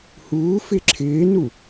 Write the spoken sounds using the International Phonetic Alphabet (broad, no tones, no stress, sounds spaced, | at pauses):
h uː f ɪ ǁʰ ɪː n u